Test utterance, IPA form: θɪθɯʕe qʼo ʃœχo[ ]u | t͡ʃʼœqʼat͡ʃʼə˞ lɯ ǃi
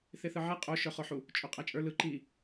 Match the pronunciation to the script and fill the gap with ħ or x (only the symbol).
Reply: ħ